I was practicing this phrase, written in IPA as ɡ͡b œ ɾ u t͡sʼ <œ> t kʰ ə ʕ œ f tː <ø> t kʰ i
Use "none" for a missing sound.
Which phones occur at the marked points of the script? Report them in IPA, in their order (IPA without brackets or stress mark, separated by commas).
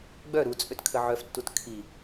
ø, u